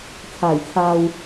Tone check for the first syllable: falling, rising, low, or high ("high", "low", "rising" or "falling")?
low